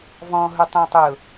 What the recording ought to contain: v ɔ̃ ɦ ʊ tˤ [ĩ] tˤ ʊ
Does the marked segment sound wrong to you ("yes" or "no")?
yes